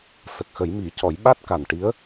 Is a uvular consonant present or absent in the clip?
absent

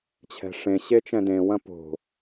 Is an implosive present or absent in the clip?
absent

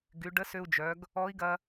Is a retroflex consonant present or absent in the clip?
present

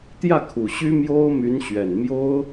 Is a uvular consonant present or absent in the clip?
absent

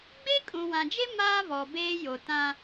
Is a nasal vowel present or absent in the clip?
present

